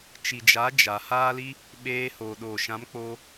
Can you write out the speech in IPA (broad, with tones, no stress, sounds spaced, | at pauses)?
t͡ʃ i˨ d͡ʒ a˨˦ d͡ʒ a˨ h aː˦ l i˦ | ɓ eː˧ h oː˨ ɗ oː˨ ʃ ã˨˦ m k͡p o˧